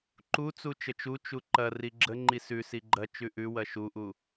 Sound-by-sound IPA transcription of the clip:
ǃ u t͡s u t͡ʃ ə t͡ʃ u t͡ʃ u ǃ ɐ r i ɡ͡ǁ ə ŋ͡ǃ i s ʉ s i ɡ͡ǃ ɐ t͡ʃ ʉ ʔ ʉ w ɐ ʃ u ʔ u

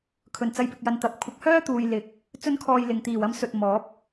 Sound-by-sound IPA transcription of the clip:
kʰ ɵ˨˩ n t͡s ɐ˨˧ j p ɪ˨ k̚ j ɐ˨ n t̪ ɐ˨ p̚ kʷʰ ɐ˨˥ k̚ h œː˥ t̪ uː˨ j l ɪ˨ k̚ | t͡s ɵ˥ n kʰ ɔː˧ j l ɪ˨ ŋ t̪ iː˨˩ w ɐ˧ m s ɵ˨ t̚ m ɔː˨˥ p̚

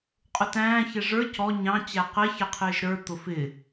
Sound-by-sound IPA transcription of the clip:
qʼ ʊ t æ̃ː ç ɛ ʐ ə˞ c ɔ ɲ ɑ̃ t͡ɕ æ q ɛ ç ɛ qʰ ɪː ʒ ɾ ə˞ t̪ ʊ f ɪ

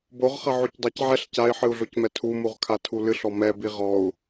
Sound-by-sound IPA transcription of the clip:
b o ʁ χ ɐ ʕ o c dˤ a c ʕ ɛ ɬ c a i̯ ħ ɨ u̯ ɮ o c m ɛ tʰ u m u ʁ kʰ a tʰ u l ɨ ɬ ɔ m ɛ b i ʁ ɔ u̯

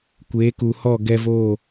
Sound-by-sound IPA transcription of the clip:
kʷ eː˨˦ k u˨ h ɔ˦˨ ɡ ɛ˧ v oː˦˨

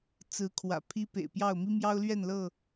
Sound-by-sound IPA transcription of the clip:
t͡s ɹ̩˨˦ kʰ w ä̰˨˩ pʰ i˦ p ḛ˨˩ ɪ̯ p j ɑ˥˨ ʊ̯ m i˦ m j ɑ˦ ʊ̯ l ɥ ɛ˥˨ n l ɤ˥˨

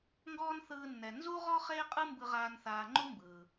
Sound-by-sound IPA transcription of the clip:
ŋ ɡ ɔː˥ n θ ɯː˧ nː ɛ˩ n z u˥ ʁ ɔ˥ χ eː˥ qʼ ɯ˥ m b ɯ˧ ʁ aː˧ n θ aː˧ ŋ͡ǃ u˥ m b ɯː˩

